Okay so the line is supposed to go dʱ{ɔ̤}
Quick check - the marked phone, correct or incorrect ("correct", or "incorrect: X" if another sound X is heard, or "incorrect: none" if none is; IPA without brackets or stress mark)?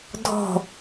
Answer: correct